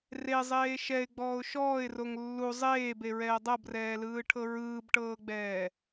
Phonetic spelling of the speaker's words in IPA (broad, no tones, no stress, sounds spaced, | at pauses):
r e zˤ eː ʃ ɛ ɪ̯ ɡ͡b ɔː ʊ̯ ʃ ɔː ɪ̯ r o ŋ lː u zˤ eː b e ɹ ɛː dˤ ɤ b r ɛː l ɯː ʈʰ ɤ ɹ ɯː b ʈ ɤː ɡ͡b ɛː